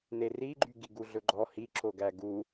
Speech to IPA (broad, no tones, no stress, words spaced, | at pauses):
neriɡ͡ǃy ɡiɡuɮɵɡ͡ǃɔ hiǁoɡæ ɡu